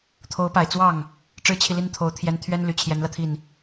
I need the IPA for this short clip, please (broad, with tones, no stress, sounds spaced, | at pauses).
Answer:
t̪ʰ o˧˥ ʊ̯ p a˨˩ ɪ̯ t͡s w ɑ˥˩ ŋ | ʈ͡ʂ ɻ̩˥ t͡ɕʰ i˨ l i˥˩ n t̪ʰ o˧˥ ʊ̯ t̪ʰ j ɛ˧˥ n t̪ʰ ɥ ɛ˥ n l y˨˩ t͡ɕʰ j ɛ˧˥ n l ä˧ t̪ʰ i˥˩ n